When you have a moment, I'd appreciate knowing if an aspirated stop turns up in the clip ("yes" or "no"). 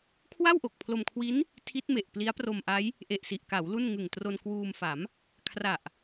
yes